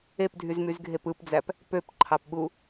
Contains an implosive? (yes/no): yes